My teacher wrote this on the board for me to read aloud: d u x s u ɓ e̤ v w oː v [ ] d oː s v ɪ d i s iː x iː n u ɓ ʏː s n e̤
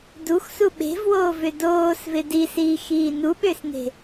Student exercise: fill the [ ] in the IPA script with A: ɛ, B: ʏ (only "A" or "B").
B